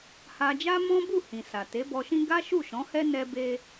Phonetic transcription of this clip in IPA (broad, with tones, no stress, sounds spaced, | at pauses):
h a˧ d͡ʒ a˦ m ɔ̃˦ b u˦˨ h ĩ˨ s a˨ t e˨˦ b ɔ˧ ʃ ĩ˦ ɡ a˦ ʃ u˦˨ ʃ ɔ̃˨˦ h ɛ˦ n ɛ˦ b e˦